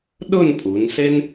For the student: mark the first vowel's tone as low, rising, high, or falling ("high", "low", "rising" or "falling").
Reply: falling